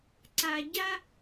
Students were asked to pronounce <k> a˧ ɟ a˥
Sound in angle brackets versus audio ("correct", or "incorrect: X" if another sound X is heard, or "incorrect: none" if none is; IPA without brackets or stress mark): incorrect: ǀ